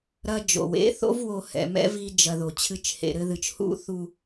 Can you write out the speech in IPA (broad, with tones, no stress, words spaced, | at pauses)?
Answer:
ɾɐ˦d͡ʒo̰˨w ḛ˦θo̰˦v wo˧ hɛ̰˨mɛ̰˦vi˧ d͡ʒɐ˧ðo˨ t͡ɕʰɨ˨˦t͡ʃhḛ˨ ɾɘ˧ðɨ˨t͡ʃ hṵ˦θu˧